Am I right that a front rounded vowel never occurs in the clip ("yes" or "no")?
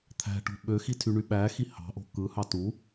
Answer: no